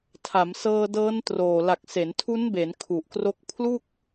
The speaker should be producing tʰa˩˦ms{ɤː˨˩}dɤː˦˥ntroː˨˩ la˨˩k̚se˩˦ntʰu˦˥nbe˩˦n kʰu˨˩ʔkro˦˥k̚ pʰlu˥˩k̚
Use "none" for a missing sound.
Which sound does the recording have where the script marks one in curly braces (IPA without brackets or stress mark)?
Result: ɤː˧